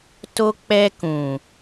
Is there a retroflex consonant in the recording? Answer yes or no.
no